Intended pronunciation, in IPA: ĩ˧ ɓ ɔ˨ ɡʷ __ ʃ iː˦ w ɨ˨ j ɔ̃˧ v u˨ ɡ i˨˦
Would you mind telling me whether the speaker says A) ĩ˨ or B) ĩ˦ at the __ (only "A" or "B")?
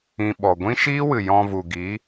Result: B